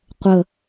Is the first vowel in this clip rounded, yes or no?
no